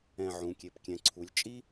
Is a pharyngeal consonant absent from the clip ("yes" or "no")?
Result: no